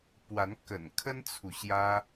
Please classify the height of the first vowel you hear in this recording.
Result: low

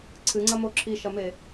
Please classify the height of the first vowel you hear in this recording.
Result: high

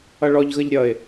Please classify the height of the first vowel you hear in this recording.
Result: mid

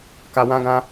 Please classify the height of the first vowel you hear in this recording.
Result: low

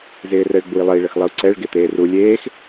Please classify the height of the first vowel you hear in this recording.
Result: high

